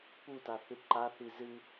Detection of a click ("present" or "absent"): present